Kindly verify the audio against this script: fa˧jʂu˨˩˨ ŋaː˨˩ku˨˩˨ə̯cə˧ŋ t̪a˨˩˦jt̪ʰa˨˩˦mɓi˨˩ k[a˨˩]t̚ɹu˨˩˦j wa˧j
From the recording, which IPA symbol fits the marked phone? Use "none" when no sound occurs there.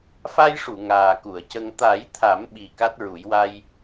a˦˥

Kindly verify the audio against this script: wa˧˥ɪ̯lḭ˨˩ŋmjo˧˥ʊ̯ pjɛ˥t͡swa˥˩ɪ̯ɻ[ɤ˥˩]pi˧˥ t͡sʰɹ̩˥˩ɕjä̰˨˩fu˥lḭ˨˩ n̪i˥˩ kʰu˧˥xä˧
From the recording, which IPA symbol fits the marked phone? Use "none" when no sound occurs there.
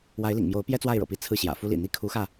ɤ̰˨˩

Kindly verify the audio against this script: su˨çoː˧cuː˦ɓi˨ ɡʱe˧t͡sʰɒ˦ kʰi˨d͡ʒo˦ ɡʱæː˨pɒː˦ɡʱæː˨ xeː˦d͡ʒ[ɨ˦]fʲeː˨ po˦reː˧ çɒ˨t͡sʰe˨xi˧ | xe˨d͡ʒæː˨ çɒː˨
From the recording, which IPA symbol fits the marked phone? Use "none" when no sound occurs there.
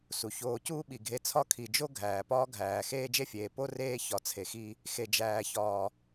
e˦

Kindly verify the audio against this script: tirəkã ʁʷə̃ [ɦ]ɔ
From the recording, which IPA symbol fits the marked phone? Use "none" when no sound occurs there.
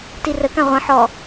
ħ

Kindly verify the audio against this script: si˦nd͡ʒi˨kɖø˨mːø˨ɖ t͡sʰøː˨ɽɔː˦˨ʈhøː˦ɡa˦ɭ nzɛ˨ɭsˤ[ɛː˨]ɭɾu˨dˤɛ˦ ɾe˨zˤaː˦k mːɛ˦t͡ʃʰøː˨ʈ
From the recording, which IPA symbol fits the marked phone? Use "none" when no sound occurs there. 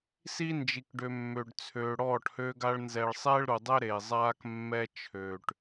ɛː˦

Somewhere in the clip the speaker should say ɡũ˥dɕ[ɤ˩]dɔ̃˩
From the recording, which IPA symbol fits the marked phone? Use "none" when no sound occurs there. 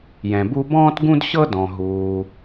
ɤ˥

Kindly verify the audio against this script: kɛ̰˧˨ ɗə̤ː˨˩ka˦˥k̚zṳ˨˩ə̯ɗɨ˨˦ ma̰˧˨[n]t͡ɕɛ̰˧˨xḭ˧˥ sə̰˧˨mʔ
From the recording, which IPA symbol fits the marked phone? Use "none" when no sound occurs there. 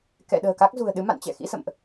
n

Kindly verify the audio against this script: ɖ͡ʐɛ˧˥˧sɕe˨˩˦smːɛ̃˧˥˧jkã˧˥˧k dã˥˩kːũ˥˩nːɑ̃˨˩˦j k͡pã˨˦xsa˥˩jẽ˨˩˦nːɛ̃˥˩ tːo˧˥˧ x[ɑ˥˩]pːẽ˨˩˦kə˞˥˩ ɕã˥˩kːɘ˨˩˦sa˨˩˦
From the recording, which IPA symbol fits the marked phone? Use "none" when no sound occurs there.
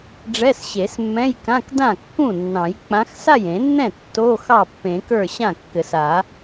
ɑ˥˩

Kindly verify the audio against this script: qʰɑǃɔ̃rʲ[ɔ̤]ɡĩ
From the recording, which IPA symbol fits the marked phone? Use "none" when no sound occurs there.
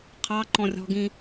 ɔ̤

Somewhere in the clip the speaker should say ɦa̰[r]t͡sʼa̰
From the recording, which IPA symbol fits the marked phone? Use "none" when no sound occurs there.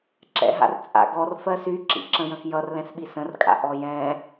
r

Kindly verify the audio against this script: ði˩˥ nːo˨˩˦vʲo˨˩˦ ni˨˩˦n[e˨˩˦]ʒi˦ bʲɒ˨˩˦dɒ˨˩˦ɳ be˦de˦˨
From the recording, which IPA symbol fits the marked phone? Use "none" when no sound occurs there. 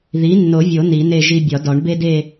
e˦˨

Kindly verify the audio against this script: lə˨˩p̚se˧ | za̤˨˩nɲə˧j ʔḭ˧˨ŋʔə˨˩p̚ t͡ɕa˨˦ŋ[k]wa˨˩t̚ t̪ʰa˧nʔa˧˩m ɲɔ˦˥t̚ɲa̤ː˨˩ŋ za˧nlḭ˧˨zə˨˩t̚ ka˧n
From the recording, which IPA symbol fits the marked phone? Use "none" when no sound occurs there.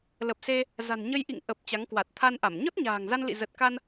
k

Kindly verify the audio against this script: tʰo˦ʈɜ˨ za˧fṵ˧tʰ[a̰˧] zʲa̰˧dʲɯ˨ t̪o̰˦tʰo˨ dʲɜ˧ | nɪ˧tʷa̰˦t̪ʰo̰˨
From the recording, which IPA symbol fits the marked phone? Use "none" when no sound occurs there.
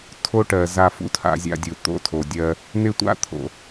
a̰˧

